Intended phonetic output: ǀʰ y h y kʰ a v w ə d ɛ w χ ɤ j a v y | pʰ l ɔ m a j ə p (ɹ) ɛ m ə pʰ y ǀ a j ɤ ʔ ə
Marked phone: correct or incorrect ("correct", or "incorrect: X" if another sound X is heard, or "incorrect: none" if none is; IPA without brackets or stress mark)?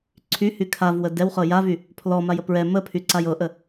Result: correct